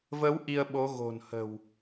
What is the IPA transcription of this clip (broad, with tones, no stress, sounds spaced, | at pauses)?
v ə˨˦ w ʔ i˧ ə̯ ɓ o˨˦ ɣ o̤˨˩ n h ə̤˨˩ w